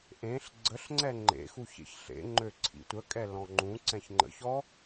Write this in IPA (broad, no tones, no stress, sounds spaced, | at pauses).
ʔ ẽ ɬ ɡ͡ǀ ə ɬ ŋ͡ǀ ɛ ŋ͡ǃ ḛ x u ç ḛ ç ɬ ḛ ŋ͡ǃ ø ǀʰ ḭ tʷ ə kʼ ɛ l ɔ̃ ŋ͡ǃ ũ ǀ ɛ̃ ç ŋ͡ǃ ə̰ ç ɔ